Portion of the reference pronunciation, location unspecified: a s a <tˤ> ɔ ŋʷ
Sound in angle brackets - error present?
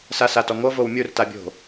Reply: yes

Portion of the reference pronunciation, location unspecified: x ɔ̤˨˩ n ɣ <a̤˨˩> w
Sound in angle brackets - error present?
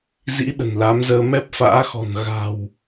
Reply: no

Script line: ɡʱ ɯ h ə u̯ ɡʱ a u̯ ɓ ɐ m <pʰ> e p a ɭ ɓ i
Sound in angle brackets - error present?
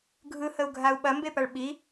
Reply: yes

